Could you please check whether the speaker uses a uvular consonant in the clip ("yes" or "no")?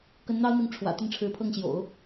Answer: no